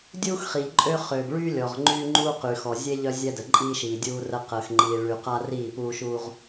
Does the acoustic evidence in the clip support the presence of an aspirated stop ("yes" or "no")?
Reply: no